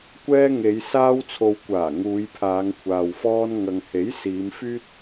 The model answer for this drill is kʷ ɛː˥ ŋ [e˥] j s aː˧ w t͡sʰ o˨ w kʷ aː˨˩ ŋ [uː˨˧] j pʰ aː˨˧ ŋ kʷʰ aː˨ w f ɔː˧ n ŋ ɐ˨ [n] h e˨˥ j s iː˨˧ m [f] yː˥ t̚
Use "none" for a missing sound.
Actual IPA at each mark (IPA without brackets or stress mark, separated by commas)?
e˨˧, uː˨˧, ŋ, f